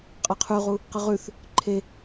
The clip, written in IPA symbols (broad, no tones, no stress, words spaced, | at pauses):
qʼaqʰʉʁu | qɨʁʉθ | ǃʰe